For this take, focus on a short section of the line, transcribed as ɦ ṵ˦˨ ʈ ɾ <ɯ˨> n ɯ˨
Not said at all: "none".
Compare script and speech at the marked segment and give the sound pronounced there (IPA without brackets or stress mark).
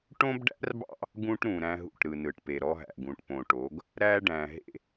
ɯ˨